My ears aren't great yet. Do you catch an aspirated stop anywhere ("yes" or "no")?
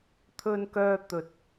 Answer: yes